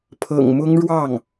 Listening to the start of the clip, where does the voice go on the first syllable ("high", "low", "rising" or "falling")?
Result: low